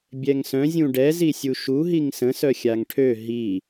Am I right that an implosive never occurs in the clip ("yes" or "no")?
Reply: yes